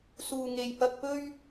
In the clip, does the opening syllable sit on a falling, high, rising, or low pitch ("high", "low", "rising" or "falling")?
low